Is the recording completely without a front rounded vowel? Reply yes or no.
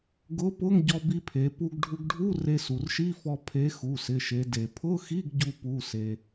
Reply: yes